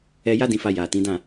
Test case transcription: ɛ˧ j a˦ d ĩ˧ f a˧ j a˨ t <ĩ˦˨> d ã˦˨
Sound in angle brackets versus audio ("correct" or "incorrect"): incorrect